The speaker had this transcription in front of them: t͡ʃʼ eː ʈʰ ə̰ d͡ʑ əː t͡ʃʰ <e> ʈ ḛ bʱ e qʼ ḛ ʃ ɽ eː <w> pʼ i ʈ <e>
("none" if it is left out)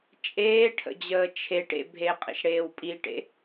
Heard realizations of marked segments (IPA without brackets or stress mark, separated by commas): e, w, ḛ